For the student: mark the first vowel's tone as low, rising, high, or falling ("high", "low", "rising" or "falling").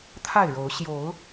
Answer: falling